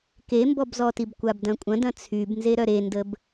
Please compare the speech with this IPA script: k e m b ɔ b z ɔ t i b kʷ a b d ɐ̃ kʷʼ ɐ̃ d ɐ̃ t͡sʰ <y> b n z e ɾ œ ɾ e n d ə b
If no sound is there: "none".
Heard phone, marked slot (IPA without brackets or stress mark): y